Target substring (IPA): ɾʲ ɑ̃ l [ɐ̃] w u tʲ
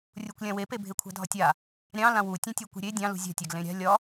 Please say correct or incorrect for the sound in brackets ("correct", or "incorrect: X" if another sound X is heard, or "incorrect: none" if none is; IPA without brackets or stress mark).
incorrect: ã